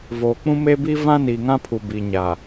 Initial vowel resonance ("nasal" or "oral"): oral